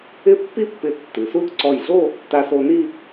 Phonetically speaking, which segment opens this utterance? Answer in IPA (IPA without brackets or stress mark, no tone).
ɪ